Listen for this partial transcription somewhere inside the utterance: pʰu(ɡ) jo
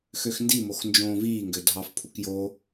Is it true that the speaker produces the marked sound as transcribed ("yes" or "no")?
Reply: no